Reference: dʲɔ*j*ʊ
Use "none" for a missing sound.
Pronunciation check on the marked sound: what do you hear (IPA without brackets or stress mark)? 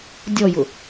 j